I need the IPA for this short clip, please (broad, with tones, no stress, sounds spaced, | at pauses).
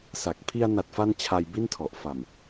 s a˨˩ k̚ pʰ i˧ a̯ n a˨˩ t̚ f a˧ n t͡ɕʰ a˧ j b i˥˩ n tʰ ɔ˨˩ ʔ f a˨˩ m